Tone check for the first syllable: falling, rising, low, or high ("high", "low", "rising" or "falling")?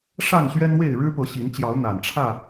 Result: falling